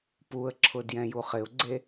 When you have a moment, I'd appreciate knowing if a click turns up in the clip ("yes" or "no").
yes